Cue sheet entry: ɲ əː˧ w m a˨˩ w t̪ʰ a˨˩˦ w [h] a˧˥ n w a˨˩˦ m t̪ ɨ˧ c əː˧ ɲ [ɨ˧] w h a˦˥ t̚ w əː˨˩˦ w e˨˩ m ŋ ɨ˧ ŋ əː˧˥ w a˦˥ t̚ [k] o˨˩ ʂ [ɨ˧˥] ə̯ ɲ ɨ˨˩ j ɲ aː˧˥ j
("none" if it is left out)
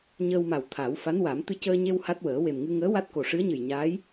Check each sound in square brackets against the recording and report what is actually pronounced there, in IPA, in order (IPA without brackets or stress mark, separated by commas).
f, e˧, k, ɨ˧˥